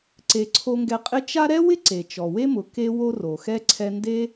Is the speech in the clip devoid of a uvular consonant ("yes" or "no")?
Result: no